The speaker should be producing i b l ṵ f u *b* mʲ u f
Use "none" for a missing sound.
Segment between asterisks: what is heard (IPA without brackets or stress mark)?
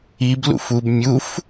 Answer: b